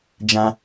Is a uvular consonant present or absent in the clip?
absent